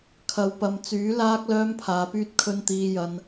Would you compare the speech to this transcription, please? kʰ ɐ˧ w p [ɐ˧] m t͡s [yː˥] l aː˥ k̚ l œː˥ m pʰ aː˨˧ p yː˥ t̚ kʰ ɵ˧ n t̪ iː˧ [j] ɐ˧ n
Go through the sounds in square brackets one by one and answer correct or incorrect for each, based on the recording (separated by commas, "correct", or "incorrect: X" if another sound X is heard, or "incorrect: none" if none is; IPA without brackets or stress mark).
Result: correct, incorrect: yː˨˥, correct